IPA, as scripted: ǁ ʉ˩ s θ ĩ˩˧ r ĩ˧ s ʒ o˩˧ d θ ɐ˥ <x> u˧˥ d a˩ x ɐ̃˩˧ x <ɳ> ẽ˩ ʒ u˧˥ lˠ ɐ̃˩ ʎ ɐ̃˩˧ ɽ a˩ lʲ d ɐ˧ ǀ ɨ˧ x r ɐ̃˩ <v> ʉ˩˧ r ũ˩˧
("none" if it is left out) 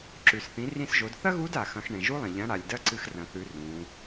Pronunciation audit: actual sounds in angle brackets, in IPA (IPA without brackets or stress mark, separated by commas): ɣ, ɳ, θ